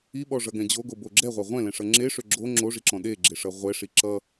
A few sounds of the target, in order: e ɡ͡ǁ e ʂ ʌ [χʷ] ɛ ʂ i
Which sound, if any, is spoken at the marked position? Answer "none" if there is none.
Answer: ʁʷ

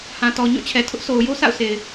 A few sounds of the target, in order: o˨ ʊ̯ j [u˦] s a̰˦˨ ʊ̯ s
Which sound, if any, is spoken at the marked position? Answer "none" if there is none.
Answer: o˦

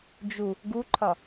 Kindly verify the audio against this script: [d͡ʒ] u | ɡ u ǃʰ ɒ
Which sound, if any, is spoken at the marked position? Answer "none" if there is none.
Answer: d͡ʒ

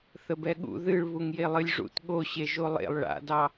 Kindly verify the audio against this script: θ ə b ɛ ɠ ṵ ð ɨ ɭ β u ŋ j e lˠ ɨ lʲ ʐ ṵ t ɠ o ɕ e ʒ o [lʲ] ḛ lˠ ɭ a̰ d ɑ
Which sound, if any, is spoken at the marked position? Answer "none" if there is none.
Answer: lˠ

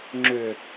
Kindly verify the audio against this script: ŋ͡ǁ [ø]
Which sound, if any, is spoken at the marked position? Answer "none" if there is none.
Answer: ø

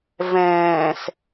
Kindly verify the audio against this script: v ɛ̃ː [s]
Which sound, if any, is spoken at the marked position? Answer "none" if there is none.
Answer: s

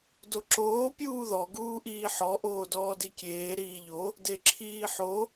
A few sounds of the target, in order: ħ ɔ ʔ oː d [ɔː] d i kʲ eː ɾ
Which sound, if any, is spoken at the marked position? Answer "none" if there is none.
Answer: ɔː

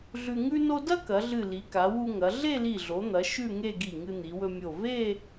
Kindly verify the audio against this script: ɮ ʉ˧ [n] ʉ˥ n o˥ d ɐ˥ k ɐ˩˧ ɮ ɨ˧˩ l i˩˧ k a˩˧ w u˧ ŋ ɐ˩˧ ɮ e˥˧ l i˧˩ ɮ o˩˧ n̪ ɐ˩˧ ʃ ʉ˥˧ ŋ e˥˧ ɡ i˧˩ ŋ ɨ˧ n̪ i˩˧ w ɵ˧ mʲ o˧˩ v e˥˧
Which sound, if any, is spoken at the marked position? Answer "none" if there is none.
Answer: ŋ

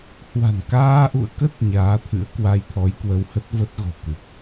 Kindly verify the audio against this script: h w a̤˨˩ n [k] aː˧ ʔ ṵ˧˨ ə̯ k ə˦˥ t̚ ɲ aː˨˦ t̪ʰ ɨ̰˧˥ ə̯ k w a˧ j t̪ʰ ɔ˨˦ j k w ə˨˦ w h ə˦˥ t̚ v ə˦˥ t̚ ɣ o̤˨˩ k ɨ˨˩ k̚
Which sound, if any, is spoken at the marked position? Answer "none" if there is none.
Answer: k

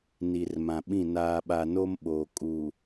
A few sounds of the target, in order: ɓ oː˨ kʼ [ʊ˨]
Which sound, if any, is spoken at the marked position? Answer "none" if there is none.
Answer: u˨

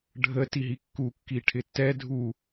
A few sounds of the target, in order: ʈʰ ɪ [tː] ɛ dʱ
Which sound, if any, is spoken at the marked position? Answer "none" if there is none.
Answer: tː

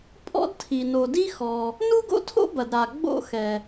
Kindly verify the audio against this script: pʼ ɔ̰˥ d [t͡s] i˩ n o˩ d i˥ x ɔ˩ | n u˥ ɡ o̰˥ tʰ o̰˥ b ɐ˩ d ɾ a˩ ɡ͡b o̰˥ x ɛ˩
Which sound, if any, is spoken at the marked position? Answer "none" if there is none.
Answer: tʰ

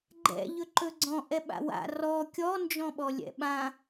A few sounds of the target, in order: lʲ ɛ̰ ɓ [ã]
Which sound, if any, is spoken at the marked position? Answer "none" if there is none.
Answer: ã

